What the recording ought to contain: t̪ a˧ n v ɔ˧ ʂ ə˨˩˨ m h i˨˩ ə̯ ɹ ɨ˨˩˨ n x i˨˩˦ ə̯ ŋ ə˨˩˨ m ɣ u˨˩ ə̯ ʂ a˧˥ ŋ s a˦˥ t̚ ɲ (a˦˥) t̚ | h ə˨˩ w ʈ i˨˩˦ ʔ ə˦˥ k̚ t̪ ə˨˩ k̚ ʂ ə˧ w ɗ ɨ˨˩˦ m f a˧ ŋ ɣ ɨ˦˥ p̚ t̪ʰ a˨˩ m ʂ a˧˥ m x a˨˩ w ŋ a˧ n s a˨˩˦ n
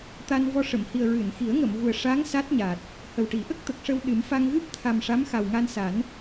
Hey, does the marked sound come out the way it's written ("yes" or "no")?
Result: no